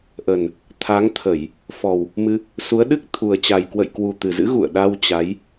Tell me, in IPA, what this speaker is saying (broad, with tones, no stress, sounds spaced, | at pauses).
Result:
ʔ ə˨˩ n | t̪ʰ a˨˦ ŋ t̪ʰ ə˧˩˨ j | f ɔ˨˩ w | m ɨ˧ | s u˨˦ ə̯ ɗ ɨ˦˥ k̚ t̪ʰ u˨˩ ə̯ t͡ɕ a˨˩ j k w ə̰˧˨ j k w u˨˩ t̪ ɨ˨˩ z ɨ̰˧˥ ɣ ṵ˧˨ ə̯ ɗ a˧ w t͡ɕ a˨˦ j